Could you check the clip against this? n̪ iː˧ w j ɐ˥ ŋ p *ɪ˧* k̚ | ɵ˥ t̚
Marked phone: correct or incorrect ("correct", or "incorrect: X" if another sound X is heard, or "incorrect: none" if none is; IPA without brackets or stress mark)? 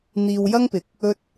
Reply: correct